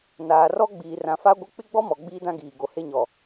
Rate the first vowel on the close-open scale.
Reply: open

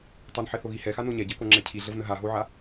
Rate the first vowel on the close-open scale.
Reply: open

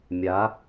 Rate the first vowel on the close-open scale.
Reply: open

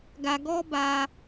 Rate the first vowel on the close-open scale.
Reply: open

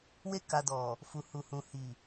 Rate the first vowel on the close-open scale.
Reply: mid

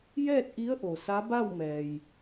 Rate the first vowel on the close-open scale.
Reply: mid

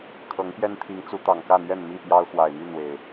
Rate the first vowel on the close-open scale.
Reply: mid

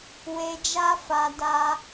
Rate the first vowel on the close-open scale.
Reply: mid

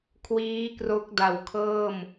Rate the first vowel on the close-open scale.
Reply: close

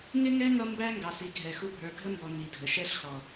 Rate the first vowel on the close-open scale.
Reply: close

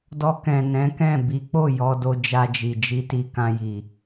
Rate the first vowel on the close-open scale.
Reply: mid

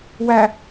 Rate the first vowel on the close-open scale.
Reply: open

